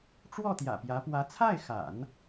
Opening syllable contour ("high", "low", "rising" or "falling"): falling